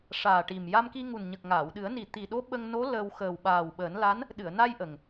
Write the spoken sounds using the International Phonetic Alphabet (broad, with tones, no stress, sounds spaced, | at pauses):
ʂ aː˨˩ ʈ i˨˩ m j a˧ m k i˧ ŋ u˨˩ n ɲ ə˨˩ k̚ ŋ aː˨˩˨ w ɗ ɨ˨˩˦ ə̯ n i˨˩ t̪ i˨˩ ɗ o˧˥ ɓ ə˧ ŋ n o˧˥ l əː˧ w x əː˨˩ w ɓ aː˨˩ w ɓ əː˨˩˦ n l a˧˥ n | ɗ ɨ˨˩˨ ə̯ n a˧ j ʔ ə˨˩ ŋ